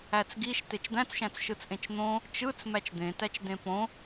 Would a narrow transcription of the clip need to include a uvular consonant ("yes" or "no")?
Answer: no